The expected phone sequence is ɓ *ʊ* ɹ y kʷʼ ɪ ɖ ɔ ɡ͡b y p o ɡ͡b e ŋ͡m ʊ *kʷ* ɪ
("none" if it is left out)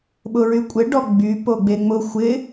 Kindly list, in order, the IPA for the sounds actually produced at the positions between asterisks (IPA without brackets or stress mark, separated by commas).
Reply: ʊ, xʷ